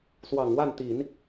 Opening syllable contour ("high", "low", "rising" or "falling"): low